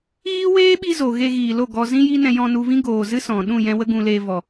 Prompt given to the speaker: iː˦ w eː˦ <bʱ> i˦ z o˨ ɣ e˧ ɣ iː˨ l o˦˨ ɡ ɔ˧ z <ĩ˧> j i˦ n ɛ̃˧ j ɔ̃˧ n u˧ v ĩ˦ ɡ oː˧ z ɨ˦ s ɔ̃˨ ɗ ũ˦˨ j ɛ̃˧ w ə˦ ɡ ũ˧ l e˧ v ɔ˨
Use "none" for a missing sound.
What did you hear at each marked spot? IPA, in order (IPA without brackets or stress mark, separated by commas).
ɓ, ĩ˦